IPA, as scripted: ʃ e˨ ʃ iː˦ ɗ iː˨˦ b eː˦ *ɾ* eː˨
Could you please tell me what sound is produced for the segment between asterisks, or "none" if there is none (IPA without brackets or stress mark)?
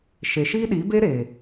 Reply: ɾ